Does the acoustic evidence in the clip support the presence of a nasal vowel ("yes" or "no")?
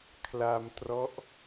no